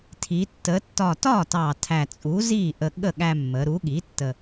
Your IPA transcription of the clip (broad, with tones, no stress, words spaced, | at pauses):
tʰi˩˧ tːə˩˧ tːɒ˨˩ tɒ˥˩tɑ˨˩ tʰæ˨˩t͡sʼu˩˥ zi˥˩ʔə˧ɠə˥˩ ɠæ˧mːə˩˧ɾu˩˥ɠi˩˥ tːə˨˩